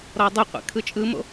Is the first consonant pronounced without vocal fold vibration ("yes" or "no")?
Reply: no